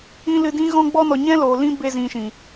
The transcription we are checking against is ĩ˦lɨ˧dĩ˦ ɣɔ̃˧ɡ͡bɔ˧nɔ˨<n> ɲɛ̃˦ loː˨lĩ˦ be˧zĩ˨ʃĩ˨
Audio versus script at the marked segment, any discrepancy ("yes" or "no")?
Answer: yes